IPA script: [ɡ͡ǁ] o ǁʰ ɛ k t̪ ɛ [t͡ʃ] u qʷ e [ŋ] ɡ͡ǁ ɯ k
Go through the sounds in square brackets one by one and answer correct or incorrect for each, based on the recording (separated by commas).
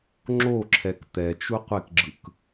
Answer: incorrect, correct, incorrect